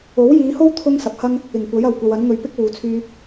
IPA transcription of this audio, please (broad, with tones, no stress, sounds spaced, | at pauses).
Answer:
o˨˥ w j iː˨˧ h o˥ w t̪ʰ ʊ˥ ŋ s ɐ˨ p̚ h ɐ˥ ŋ | ɪ˨˩ ŋ kʷ ɐ˨˥ j ɐ˨˩ w kʷ ɐ˨ w ɐ˨˥ n ŋ ɵ˨ ɥ p ɪ˥ k̚ w uː˨ t͡sʰ yː˧